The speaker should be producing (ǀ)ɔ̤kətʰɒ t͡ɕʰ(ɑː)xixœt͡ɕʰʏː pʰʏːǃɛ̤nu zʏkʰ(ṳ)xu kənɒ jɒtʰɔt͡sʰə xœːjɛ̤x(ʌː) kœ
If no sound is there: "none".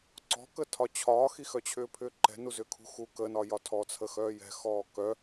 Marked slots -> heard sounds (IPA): ǀ, ɒː, ṳ, ɔː

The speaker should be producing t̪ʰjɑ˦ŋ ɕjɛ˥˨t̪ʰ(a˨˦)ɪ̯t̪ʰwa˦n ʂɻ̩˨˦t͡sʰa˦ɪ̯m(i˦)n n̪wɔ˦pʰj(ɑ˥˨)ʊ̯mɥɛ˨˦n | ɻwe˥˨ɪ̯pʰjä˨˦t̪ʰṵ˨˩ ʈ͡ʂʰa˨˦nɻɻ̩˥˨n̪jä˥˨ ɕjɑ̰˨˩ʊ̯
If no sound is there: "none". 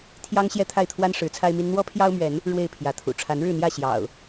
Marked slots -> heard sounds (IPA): a˥˨, i˦, ɑ˦

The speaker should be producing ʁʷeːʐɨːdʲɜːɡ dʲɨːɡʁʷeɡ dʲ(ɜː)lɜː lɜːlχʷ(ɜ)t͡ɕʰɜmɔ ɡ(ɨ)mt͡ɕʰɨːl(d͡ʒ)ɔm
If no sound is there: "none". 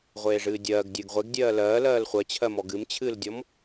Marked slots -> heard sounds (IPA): ɜː, ɜ, ɨ, dʲ

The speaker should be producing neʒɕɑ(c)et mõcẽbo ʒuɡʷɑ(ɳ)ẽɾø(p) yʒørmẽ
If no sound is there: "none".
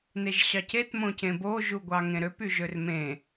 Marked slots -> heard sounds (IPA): c, ŋ, p

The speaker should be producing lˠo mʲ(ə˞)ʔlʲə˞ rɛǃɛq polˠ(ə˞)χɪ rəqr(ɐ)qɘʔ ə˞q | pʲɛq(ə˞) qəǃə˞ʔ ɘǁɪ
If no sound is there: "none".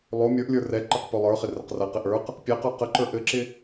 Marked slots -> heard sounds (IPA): ə˞, ə˞, ɐ, ə˞

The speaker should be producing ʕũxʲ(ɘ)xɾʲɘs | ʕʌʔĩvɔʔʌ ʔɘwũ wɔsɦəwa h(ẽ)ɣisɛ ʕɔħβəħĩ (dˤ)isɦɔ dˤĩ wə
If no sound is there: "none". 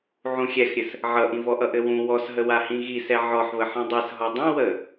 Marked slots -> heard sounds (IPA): ɛ, ĩ, dˤ

